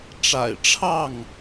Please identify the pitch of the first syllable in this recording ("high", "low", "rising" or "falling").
low